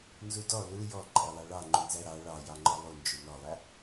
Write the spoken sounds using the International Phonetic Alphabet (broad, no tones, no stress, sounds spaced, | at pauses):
n z u d ɔ l u j ɔ ǃʼ ɛ lˠ ɑ ɭ ɑ ŋ͡ǃ u n z æ ɾ ɑ ɭ ɑ j ɑ ŋ͡ǃ ɔ lˠ u n d͡ʒ u n ɔ lˠ æ